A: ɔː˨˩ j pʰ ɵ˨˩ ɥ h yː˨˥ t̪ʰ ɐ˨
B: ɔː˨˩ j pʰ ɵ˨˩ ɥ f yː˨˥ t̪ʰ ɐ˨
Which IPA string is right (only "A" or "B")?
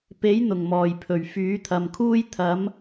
B